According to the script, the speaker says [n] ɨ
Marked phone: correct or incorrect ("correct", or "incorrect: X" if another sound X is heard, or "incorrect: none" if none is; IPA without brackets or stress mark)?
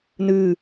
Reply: correct